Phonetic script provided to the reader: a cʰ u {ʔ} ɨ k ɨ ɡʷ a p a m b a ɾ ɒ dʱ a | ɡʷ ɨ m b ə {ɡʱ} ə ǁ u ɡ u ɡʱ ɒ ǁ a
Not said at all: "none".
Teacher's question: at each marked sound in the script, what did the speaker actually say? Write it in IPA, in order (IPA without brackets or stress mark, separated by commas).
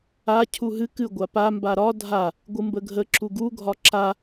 ɦ, ɡʱ